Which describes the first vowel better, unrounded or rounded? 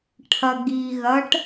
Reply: unrounded